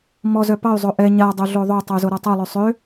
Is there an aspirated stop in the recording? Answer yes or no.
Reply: no